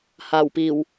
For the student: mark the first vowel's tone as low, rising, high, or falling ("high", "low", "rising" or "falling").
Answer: low